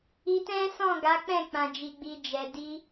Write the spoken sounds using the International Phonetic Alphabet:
i˧tɛ̃˦sɔ̃˦˨ ɡa˨˦k͡pɛ̃˦˨ k͡pã˨d͡ʒi˨ɡ͡bi˨ d͡ʒɛ˨di˧

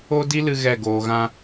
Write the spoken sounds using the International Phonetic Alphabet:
o˦di˦lɨ˧ ɣɛ˦˨ɡoː˧ɣã˦

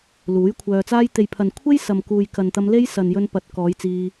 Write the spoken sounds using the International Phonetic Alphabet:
luː˨˥jkʷʰœː˧t͡saː˥j t̪e˨jpʰɐ˨n kʷʰe˥j sɐ˨mkuː˨jkɐ˨nt̪ɐ˧m le˥j sɐ˨njɵ˧n pɐ˧t̚ kɔː˨˧jt͡siː˧

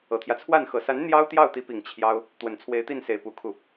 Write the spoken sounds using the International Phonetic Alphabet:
ɤ˨˩t̪ʰjä˦t͡sʰwa˥˩n xɤ˨˩sa˧˥n n̪jɑ˥ʊ̯ t̪jɑ˥˩ʊ̯t̪i˧˥pi˨˩ŋ t͡ɕʰjɑ˥ʊ̯ | t̪wə˨˩nt͡sʰwe˧˥ɪ̯t̪i˥˩nse˨˩ɪ̯ pu˧˥kʰu˥˩

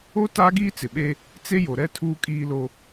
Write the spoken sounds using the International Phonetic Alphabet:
o˦ taː˦ɡiː˦t͡sɪ˨ɓe˦ | t͡se˦jo˨ɾɛ˦tʰuː˦ kʼiː˦lo˦

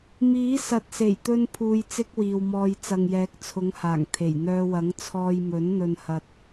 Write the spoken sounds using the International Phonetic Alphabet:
miː˨˥ sɐ˨t̚se˨˩jt̪ɵ˧npʰuː˨j t͡sɪ˥k̚wiː˨wmɔː˧j t͡sɐ˨ŋjɛː˨˥k̚t͡sʰʊ˨˥ŋhaː˨˩ŋ t̪ʰe˨˩jn̪œː˧wɐ˨˥ŋ t͡sʰɔː˧jmɵ˨˥nn̪ɵ˧nhɐ˧t̚

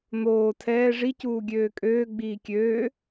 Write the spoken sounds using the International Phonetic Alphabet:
n̪oː tʰɛː ʐi cuːɡʲøːkʼøː ɡ͡biːkʲøː

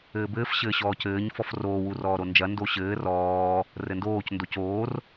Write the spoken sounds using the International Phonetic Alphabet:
ɘːbɘːf ɕɘːɕɔːcɘːɲ fɔfroː wurɔːɾond͡ʒɐ ndoɕɘː rɔː | rɘndoːc ndocoːr

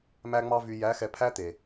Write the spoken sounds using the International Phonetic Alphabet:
mæ˧ŋ͡mɑ˧ vy˨jæ˨˦ xɛ˨pʰæ˦ t̪e˨

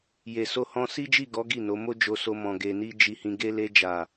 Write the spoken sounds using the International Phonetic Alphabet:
je˨so˧hɔ̃˧ si˦d͡ʒi˦˨ɡɔ˨˦ ɡi˦˨no˨˦ mo˦d͡ʒo˧so˧mɔ̃˨ ɡe˨ni˧ d͡ʒi˨hĩ˨ ɡe˧le˧d͡ʒa˨

